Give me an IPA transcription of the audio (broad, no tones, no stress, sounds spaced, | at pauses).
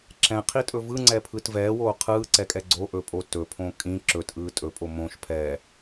ǁ ɛ̃ qʰ i tʼ ɵ v ɯ ŋ͡ǀ ɛ pʰ ɯ t v ɛː w oː qʰ ɯː ǀ ɛ kʼ ɛ ɡ͡ǀ o ʔ ɵ pʼ o t ɵ pʰ õ kʼ ĩ ǁ ɵ t ʔ ɯː tʼ ɵ pʼ o m õ ʃ pʰ ɛː